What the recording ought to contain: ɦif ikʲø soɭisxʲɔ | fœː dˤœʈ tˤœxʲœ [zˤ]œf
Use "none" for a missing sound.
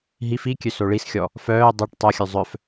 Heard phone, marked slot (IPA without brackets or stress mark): zˤ